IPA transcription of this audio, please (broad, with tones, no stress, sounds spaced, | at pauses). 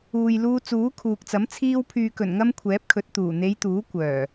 uː˨ j l uː˧ t͡s uː˨˥ kʰ uː˨ k̚ t͡s ɐ˨˥ m t͡sʰ iː˧ w pʰ yː˨ k ɵ˨˩ n ŋ ɐ˧ m kʷʰ ɛː˨˥ p̚ kʰ ɵ˨˥ t̚ t̪ uː˨˩ n̪ e˨˧ j t̪ uː˨˥ kʷ œː˨˩